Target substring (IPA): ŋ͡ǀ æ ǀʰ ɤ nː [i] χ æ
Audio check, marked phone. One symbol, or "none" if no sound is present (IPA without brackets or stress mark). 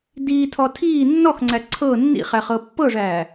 ḭ